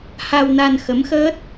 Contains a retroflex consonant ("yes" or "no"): no